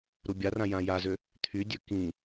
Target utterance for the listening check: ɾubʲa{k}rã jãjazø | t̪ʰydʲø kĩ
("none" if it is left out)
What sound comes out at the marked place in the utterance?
none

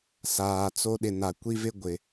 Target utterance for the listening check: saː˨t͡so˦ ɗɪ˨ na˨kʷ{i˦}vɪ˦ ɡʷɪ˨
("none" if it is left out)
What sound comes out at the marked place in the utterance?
i˦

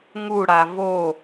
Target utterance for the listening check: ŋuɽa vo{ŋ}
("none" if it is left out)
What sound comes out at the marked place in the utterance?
none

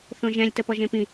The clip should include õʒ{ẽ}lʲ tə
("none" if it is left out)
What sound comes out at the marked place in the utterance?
ɛ̃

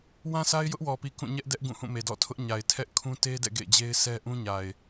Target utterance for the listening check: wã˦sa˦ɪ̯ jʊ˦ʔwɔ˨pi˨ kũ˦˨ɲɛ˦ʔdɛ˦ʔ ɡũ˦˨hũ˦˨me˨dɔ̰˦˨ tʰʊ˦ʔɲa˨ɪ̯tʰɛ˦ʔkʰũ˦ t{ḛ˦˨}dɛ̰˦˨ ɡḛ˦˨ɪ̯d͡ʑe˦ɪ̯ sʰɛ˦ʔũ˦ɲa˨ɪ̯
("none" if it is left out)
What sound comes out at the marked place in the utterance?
e˦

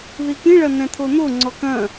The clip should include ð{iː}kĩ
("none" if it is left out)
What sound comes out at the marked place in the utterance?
i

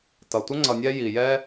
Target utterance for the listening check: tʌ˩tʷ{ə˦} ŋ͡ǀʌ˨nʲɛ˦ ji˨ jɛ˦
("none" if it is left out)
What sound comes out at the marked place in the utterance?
ə˥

